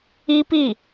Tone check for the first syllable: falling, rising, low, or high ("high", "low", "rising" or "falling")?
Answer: high